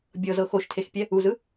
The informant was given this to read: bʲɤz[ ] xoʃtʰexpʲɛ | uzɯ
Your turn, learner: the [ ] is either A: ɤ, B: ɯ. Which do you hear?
A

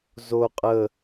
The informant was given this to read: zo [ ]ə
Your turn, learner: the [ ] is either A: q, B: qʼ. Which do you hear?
B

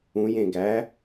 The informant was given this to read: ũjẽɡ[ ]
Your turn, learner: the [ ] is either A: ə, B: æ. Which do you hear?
B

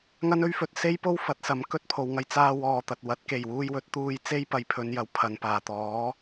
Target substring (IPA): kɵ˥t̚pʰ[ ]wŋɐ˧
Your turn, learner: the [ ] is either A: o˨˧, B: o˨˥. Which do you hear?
A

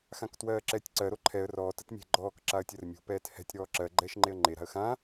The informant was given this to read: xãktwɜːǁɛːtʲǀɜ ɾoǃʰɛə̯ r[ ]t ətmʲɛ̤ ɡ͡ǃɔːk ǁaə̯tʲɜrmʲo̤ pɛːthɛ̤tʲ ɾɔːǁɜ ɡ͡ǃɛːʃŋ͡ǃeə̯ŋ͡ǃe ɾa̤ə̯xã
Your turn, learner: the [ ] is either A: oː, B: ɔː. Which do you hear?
B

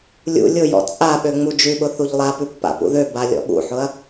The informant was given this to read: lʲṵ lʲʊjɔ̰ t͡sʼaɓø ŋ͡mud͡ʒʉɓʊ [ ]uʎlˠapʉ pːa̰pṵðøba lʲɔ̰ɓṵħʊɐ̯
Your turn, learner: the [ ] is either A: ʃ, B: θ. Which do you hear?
B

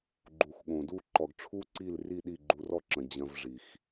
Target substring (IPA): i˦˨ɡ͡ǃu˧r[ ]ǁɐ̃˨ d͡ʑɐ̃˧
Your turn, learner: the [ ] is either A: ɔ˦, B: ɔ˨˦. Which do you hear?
A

